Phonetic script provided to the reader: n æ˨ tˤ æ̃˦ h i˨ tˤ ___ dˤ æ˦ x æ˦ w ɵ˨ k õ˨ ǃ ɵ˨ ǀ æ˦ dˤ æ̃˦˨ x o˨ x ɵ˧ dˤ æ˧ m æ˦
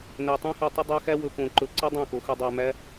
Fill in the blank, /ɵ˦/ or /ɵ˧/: ɵ˦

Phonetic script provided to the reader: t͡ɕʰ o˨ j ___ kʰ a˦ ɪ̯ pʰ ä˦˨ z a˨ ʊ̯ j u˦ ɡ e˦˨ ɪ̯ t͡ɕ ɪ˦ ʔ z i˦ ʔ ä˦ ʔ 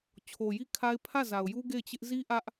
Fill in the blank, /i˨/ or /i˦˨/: i˦˨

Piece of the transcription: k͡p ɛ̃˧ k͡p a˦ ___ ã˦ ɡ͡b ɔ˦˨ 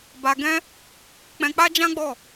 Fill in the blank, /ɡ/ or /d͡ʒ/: d͡ʒ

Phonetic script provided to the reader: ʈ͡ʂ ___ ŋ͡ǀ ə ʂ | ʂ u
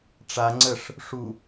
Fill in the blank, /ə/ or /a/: a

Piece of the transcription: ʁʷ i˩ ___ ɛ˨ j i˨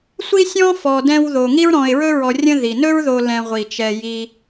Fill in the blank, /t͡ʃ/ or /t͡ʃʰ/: t͡ʃ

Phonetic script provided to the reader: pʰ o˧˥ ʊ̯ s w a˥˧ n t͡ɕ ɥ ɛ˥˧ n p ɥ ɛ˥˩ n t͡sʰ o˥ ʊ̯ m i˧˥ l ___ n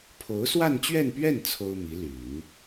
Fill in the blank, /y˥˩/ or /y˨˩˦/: y˨˩˦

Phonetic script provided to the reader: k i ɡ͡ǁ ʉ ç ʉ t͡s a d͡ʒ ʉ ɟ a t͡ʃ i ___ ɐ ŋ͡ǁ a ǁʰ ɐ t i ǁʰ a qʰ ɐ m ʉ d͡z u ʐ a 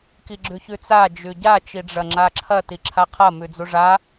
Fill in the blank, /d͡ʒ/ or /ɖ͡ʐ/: ɖ͡ʐ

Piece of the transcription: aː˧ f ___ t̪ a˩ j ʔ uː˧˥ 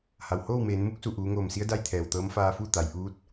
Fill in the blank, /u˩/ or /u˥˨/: u˥˨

